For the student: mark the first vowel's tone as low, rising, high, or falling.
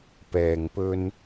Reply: low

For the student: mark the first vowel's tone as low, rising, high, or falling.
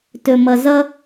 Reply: low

